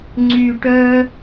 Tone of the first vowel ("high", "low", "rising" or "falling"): low